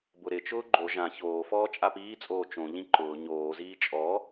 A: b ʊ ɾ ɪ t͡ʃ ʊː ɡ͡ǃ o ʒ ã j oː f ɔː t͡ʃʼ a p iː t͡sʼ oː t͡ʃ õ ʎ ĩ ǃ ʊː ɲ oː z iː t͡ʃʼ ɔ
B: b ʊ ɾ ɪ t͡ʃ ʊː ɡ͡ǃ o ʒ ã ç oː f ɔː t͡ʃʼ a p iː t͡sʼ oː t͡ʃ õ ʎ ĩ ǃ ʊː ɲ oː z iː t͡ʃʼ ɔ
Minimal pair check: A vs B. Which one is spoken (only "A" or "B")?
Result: B